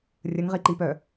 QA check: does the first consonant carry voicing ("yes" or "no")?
yes